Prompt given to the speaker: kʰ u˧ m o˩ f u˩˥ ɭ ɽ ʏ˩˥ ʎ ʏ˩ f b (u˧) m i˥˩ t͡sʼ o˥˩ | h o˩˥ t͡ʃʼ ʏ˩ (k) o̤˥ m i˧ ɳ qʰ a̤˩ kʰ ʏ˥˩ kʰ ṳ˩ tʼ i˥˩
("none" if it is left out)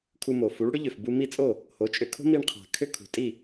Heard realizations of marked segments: u˧, kʰ

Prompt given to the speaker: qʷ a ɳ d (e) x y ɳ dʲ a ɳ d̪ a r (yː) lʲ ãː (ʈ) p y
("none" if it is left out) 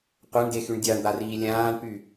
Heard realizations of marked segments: e, iː, ɳ

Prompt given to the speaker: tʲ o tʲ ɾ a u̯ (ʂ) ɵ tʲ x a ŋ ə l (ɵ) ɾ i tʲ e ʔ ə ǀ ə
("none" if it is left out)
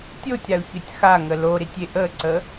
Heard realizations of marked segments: ç, o

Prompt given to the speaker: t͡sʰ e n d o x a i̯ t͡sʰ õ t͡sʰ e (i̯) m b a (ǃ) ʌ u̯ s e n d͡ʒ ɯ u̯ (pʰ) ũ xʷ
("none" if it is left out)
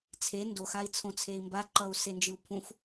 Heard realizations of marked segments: i̯, ǃ, pʰ

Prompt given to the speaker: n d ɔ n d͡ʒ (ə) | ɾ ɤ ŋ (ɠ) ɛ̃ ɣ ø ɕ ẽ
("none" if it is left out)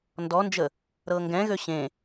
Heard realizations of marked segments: ə, ɡ

